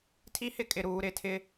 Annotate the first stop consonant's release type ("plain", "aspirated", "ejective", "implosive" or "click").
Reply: aspirated